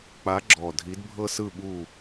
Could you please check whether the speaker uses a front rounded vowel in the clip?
no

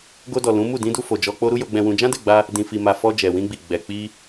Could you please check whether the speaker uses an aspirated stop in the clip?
no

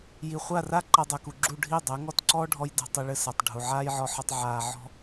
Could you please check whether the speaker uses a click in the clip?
yes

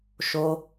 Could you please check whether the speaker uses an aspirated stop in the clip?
no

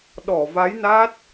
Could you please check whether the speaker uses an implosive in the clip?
yes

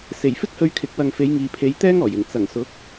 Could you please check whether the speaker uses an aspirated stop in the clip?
yes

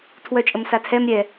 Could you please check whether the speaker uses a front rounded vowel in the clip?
yes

